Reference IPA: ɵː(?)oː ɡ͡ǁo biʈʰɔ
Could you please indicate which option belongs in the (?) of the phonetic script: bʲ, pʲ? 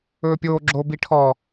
pʲ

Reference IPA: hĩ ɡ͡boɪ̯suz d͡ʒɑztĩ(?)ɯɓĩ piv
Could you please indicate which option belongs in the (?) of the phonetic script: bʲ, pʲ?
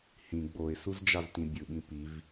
bʲ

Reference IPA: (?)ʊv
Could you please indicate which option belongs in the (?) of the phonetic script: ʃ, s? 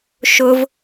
ʃ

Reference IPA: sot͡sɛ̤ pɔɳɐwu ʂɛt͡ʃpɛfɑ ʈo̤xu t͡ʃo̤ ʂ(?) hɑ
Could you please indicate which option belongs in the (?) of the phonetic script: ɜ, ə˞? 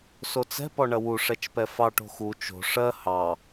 ɜ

